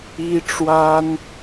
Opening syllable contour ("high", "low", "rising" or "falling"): high